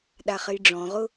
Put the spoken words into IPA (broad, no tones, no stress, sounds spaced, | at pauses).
ɗ a χ ɘ j ɖ͡ʐ ɔ̃ ʁ ʊ